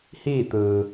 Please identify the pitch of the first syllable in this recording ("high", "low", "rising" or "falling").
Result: falling